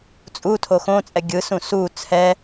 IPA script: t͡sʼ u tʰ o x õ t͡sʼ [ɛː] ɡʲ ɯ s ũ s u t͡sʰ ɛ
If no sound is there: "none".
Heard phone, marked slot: ɛ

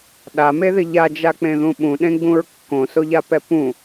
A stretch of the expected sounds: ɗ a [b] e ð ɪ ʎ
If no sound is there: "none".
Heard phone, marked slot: m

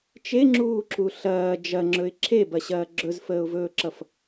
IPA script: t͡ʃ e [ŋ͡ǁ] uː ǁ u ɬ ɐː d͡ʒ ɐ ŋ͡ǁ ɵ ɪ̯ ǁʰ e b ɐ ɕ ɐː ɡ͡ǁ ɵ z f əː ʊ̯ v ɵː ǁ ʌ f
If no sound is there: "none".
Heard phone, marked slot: ŋ͡ǁ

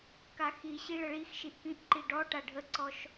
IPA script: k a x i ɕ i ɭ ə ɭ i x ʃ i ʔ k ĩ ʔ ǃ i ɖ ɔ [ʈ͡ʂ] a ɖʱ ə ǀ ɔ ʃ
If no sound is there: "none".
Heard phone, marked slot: ʈ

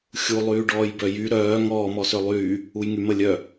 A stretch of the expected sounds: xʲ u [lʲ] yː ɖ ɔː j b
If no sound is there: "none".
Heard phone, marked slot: lˠ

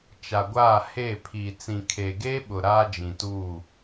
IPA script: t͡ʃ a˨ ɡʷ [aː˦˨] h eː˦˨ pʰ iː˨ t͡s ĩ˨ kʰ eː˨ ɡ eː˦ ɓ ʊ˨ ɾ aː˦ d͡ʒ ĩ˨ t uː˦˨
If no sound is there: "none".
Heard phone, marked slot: aː˦˨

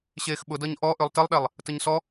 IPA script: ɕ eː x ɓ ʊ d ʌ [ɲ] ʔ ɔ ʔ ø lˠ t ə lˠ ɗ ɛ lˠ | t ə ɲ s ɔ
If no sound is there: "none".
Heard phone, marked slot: ɲ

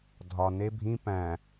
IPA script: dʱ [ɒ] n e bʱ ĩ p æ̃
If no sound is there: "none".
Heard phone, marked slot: ɒ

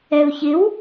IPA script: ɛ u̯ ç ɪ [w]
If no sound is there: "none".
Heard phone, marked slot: w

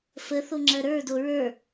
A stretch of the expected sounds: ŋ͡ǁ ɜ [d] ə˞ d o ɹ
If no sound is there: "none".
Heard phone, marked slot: ɾ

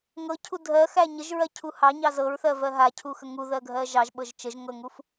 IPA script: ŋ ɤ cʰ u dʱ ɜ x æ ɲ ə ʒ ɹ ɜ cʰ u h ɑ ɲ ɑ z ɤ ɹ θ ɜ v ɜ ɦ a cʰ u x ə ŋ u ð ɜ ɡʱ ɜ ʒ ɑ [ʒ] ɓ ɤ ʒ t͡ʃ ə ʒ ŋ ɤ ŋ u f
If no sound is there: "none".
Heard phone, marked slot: ʒ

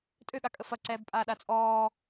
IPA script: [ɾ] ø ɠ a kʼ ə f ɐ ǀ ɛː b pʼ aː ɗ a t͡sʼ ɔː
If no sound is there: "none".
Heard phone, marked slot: tʼ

